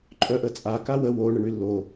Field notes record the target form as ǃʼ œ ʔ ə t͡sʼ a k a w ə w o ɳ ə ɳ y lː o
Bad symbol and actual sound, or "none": none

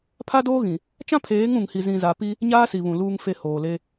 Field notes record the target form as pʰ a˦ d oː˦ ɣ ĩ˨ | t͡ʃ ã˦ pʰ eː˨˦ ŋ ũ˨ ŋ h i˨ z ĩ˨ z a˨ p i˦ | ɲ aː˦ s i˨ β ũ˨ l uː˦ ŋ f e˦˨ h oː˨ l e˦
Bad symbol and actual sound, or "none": none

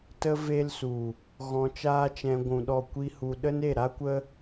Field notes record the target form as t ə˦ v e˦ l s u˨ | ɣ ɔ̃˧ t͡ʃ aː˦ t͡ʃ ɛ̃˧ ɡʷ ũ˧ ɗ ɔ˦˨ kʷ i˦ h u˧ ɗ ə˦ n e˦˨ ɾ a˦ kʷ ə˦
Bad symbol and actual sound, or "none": none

